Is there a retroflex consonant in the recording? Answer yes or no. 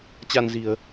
no